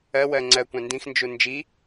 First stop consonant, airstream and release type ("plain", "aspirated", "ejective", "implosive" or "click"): click